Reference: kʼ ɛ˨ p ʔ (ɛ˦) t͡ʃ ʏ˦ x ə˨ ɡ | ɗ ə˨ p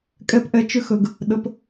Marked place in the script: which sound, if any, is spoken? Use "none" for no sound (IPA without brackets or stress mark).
ɛ˨